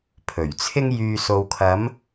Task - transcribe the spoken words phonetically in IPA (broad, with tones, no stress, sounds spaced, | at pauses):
pʰ ɵ˨˩ ɥ t͡sʰ ɪ˥ ŋ j yː˨ s o˨ w kʰ ɐ˨˧ m